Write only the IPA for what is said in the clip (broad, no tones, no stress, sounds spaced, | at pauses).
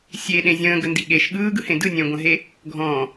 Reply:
sʲ e ɗ ẽ zʲ ə̃ː ɡ ə n d i ɠ e ʃ ɠ ɯː ɡ ɯ h ẽ d ɯ nʲ ə̃ː ɡʷ ə̃ ɦ e | ɡʱ ɔ̃